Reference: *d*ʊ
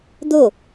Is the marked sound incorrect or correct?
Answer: correct